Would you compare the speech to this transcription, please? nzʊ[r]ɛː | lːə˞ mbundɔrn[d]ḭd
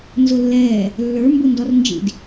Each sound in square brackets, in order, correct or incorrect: incorrect: lː, incorrect: d͡ʒ

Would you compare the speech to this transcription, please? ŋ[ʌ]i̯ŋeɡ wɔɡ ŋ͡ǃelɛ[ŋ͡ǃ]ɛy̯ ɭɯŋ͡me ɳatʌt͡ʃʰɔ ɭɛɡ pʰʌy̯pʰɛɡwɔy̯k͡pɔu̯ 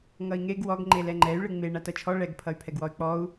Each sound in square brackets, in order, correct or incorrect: correct, correct

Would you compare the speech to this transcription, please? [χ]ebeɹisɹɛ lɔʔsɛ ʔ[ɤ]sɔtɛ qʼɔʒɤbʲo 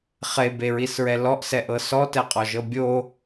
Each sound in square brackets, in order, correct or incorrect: correct, correct

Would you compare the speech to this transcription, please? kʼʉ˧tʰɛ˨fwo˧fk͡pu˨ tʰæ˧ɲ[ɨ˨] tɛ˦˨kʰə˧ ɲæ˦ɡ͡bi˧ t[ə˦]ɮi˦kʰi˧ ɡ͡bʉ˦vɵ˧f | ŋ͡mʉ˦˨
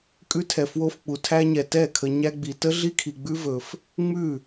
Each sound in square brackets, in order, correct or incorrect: incorrect: ɛ˨, correct

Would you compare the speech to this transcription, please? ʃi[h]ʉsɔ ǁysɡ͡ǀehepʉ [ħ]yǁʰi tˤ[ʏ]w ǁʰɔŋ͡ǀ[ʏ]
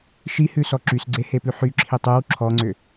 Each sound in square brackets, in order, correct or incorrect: correct, correct, incorrect: y, correct

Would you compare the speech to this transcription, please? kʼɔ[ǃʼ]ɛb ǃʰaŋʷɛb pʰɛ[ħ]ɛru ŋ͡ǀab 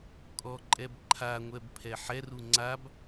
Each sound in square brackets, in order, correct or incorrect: correct, correct

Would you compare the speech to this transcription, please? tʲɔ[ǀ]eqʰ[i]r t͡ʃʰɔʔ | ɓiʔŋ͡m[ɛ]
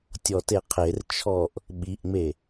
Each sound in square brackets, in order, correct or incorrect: incorrect: t, incorrect: e, incorrect: e

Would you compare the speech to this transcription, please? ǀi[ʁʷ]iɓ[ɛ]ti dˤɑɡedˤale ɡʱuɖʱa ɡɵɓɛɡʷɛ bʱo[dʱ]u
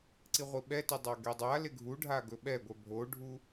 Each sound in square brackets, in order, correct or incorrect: correct, correct, incorrect: ɖʱ

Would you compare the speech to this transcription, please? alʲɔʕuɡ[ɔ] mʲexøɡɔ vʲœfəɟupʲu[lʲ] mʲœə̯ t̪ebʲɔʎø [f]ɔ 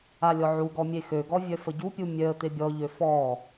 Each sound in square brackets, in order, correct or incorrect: correct, incorrect: none, correct

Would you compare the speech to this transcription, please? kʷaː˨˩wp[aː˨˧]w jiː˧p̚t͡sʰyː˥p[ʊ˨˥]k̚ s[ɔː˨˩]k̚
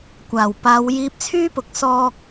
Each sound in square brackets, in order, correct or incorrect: correct, correct, incorrect: ɔː˧

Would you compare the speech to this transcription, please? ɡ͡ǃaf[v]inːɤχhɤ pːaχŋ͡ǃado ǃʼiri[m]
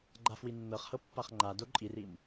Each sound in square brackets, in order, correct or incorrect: incorrect: w, correct

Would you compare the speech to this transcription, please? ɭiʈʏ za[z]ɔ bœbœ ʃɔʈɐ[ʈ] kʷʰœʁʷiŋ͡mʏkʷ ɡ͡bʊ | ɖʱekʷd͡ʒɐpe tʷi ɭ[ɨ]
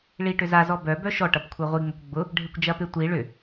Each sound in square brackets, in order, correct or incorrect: correct, incorrect: p, incorrect: ʏ

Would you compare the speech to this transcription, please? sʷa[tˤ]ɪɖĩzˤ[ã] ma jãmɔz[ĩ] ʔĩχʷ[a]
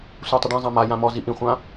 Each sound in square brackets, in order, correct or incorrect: correct, correct, incorrect: i, incorrect: ã

